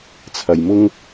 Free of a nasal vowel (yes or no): yes